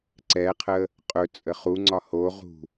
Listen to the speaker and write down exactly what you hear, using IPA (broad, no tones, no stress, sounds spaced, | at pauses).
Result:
ǀ ɛ qʰ ə | qʼ ɵ t͡sʼ ə χ u ŋ͡ǀ ɒ h o ʁ ṳ